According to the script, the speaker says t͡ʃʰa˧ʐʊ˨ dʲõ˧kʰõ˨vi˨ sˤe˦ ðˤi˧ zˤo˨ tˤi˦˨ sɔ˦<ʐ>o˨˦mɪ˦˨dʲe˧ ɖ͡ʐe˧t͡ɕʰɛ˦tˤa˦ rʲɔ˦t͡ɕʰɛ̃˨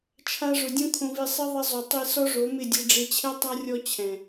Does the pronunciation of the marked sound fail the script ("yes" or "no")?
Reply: no